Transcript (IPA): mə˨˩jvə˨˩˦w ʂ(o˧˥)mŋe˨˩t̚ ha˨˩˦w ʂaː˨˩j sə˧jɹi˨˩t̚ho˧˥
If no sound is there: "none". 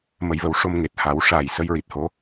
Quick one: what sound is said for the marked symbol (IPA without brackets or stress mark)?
o˧